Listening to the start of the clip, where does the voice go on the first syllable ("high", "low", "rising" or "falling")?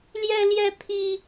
high